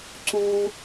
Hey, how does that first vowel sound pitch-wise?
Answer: high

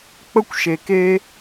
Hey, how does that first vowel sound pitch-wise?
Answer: high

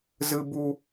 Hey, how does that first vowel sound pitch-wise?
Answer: low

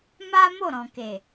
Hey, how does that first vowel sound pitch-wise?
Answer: high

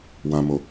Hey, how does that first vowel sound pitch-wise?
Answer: low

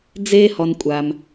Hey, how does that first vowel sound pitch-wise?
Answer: high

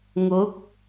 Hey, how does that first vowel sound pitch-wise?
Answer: rising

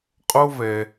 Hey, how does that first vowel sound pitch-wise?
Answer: high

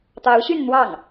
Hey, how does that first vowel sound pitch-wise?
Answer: rising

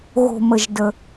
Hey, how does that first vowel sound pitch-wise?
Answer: low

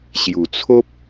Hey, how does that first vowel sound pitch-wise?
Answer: low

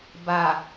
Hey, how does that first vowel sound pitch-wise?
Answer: low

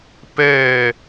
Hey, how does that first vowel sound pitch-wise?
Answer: falling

